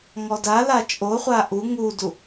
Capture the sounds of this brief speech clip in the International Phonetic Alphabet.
ŋ ɔ d a l a t͡ʃʼ o χʷ a ʔ u ŋ u d u

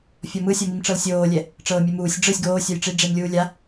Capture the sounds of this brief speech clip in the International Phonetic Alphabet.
fʲ ɔ m ɯ sʲ ɔ m i m ʈ͡ʂ ɤ l sʲ oː lʲ ɛ | ʈ͡ʂ ɤː mʲ ɛ m uː sʲ ɖ͡ʐ ɯ sʲ ɡ oː sʲ ɔ j ʈ͡ʂ i ɖ͡ʐ e m lʲ uː lʲ a

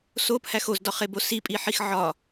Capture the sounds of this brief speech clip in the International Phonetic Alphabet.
s o p h æ x o z d ɒ χ e b o s i pʼ i ħ i x ʕ ɒ

